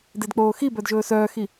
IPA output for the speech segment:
d e d k͡p oː x i b œ d ʒ ɵː s œː x i

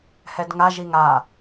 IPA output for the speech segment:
h ɛ d ŋ a ʒ i ŋ a

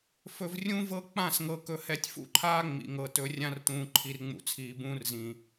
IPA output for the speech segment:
f ɵ˨ v rʲ ũ˦ v ɤ˦ k͡p ã˦˨ s ŋ ɤ˨ k ɵ˨ h ɛ˨ tʲ f ṵ˦ ǃʰ aː˦ ŋ͡m ḭ˨ ŋ ɤ˨ t ɵ˦ rʲ ã˦ r t ũː˨ ǃʰ i˨ r ŋ͡m ṵ˨ t͡sʰ iː˨ b ũː˦ r z ĩ˨

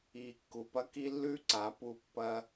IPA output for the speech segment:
i˨ kː u˨ p ɐ˦ k i˦ lː ʉ˦ ǀ a˨˦ p u˧ pː ɐ˧

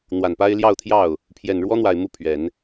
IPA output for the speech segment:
n̪ w a˨˩ n p a˥ ɪ̯ l j ɑ˥˧ ʊ̯ t̪ʰ j ɑ˥˩ ʊ̯ | pʰ j ɛ˨˩ n ɻ w ɔ˥ n̪ w a˨˩ ɪ̯ m u˥˩ pʰ ɥ ɛ˨˩˦ n

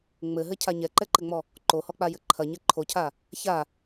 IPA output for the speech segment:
ŋ͡m ɘ ɦ ɘ cʰ a ɲ ɛ ǃ ɛ ǃ ɘ ŋ͡m ɔ | ǃ o h ɔ k͡p a j ɘ ǃʰ ɐ ɲ ɛ ǃʰ o cʰ a | ç a

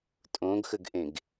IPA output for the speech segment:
tʼ õ ɡ x ə ɡ ʔ ẽ ɡ

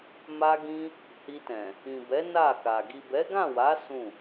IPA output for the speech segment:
m a˦ ɡ ĩ˦ | h i˧ t ɛ̃˨ | ĩ˨ b ɛ˨˦ n a˦˨ k a˨ ɡ i˨ b ɛ˨˦ ɡ ã˦˨ w a˨˦ s ũ˦˨

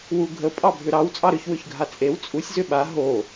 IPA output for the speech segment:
w u ɡʱ ə pʼ ɑ bʱ ʏ ɾ ɑ w t͡sʼ ɑ ɾ ʏ ç w ʏ ç ɡʱ a t͡sʼ e w t͡sʼ u sʲ z ʏ ɓ a ɦ o

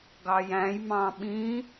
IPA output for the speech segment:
ɡ ɑ j æ̃ j m ɑ̃ ɓ ĩ

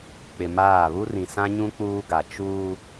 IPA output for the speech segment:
k͡p ɪ˨ m aː˦˨ β u˦ r ĩ˨ s ã˦ ɲ ũ˦ k͡p uː˦ ɡ a˨ t͡ʃ uː˦

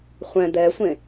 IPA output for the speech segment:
χʷ ɛ̃ d̪ ɛ sʷ ẽ

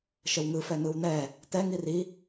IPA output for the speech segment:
ʃ ə w ŋ ɯ f ɛ n ɯ w n ɛ | t ɛ ŋ i r i

